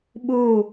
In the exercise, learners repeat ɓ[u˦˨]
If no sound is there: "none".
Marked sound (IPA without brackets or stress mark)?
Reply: u˦˨